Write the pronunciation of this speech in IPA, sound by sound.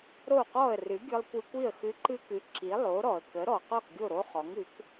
ɾ o˥˩ q ɔ˥˩ ə̯ r ɨ˩˥ ɡʲ ɨ˧ lˠ kʷ ɨ˧ kʷ i˥˩ ə̯ x ɨ˧ ǃ ɨ˥ k ɨ˩˥ ǁ i˩˥ lˠ o˩˥ ɾ ɔ˩ ə̯ k ə˩˥ ɾ ɔ˩ q ɔ˥˩ k ɡʲ o˥˩ ɾ o˥ χ ɔ˩˥ ŋ ɨ˩˥ k

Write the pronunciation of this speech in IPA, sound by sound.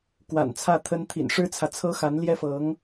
k w a̰˨˩ n t͡sʰ ä˥˩ t̪ʰ ə˥ n t̪ʰ ḭ˨˩ n ʂ ɻ̩˥ t͡sʰ ä˨ t͡sʰ ɤ˥ x a˧˥ n l j ɛ˥ f ɤ˧˥ ŋ

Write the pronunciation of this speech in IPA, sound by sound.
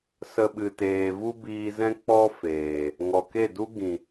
s ə˧ ɓ ɨ˨ t eː˨ v u˦ b iː˧ z ɛ̃˦ k͡p ɔ˦ f eː˨ | ŋ ɔ˨ k e˦˨ d u˦ ɡ ĩ˨

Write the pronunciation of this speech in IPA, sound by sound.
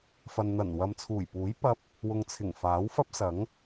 f ɐ˨ n n̪ ɐ˨˩ n w ɐ˨ m t͡sʰ uː˨˩ j p uː˨˥ j p ɐ˧ p̚ | w ʊ˨ ŋ t͡sʰ ɪ˨˩ ŋ f aː˨˥ w f ɐ˥ p̚ s ɐ˨˥ ŋ

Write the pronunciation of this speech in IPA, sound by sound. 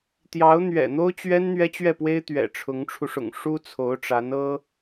t̪ j ɑ˧˥ ʊ̯ n̪ ɥ ɛ̰˨˩ n̪ o˥ ʊ̯ t͡ɕ ɥ ɛ˥ n n̪ ɥ ɛ˥ t͡ɕ ɥ ɛ˥˩ p w e˥ ɪ̯ t̪ ɥ ɛ̰˨˩ ʈ͡ʂʰ ʊ˧˥ ŋ ʈ͡ʂʰ u˧ ʂ ʊ̰˨˩ ŋ ʂ u˥ t͡sʰ o˧˥ ʊ̯ ʈ͡ʂ a˧˥ n ɤ˥

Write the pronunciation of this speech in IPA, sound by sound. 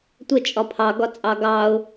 tʷ ə t͡ʃʼ ɒ pʰ ɑ ɡ ɒ t͡sʼ ɑ ɡ ɑ ʊ̯

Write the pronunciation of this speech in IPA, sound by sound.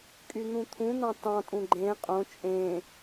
kʼ y n̪ ũ t̪ʰ ũ n̪ ɑ̃ t ɑ̃ tʼ ũ ɡ͡ǃ ẽ qʼ õ t͡ʃʼ ẽ

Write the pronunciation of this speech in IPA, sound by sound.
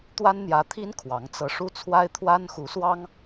t̪ w a˥ n n̪ j ä˧˥ t̪ʰ i˥ n kʰ w ɑ˧˥ ŋ t͡s ɤ˧˥ ʂ u˥ t͡sʰ w a˥ ɪ̯ t̪ʰ w a˥ n x u˧˥ s w ɑ˥ ŋ

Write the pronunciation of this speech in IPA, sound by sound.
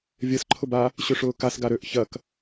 vʲ ɐ s ǃʰ ʊ b a | ɕ ʏ ʂ ʊː k a s ɡ a ɾ ø ʔ ç ɐ k

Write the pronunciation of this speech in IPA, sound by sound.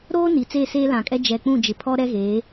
ɾ oː˦ n i˨ t͡s eː˦˨ s eː˦ l ã˨ kʼ ɛ˦ d͡ʒ ɛ˨ k͡p ũ˦˨ d͡ʒ ɪ˨ pʰ ɔ˦ ɾ ɛ˦ ɣ eː˨˦

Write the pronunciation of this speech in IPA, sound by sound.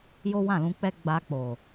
j o˦ w ã˦˨ l ũ˧ k͡p ɛ˦ ɡ͡b a˧ k͡p o˨

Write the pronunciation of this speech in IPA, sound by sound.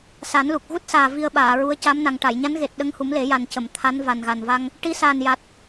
s a˨˩˦ n l u˨˩ k̚ ɣ u˦˥ t̚ s aː˨˩ v i˧ ə̯ ɓ aː˨˩˨ ɹ u˧˥ ə̯ c aː˧˥ m n a˨˩ ŋ ʈ a˨˩˨ j ɲ a˧˥ n ɣ e˨˩ t̚ ɗ ə˧ ŋ h u˨˩˦ m l e˨˩˦ j a˨˩ n c ə˨˩˨ m t̪ʰ a˧˥ n v a˨˩ n ɣ a˨˩ n v a˧ ŋ | ʈ i˧˥ s aː˨˩ n j a˨˩ t̚

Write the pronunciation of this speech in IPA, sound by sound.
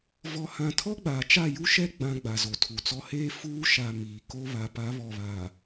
v ɔ˨ h ã˨ tʰ ɔ˦ ɡ͡b aː˨ t͡ʃ a˦˨ j u˦ ʃ ɛ˦ ɡ͡b ã˨ ɡ͡b a˨ z o˨ tʰ u˨ t͡s ɔ˦ h eː˦ f uː˦ ʃ a˨ m iː˨ k o˦ β a˨ p a˨˦ β ɔ˨ β a˨

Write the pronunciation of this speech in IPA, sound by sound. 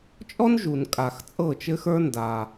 t͡ʃʼ ɔ˥ n ʒ u˩ n kʼ a˩ x t͡sʼ ɤ˥˩ t͡ʃ ɘ˥ x ə˞˥ n d aː˩

